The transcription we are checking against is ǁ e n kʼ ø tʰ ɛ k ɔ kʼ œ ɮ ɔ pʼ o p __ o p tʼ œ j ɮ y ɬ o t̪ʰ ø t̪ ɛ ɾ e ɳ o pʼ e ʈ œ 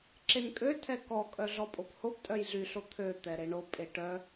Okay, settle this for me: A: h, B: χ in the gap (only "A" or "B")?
A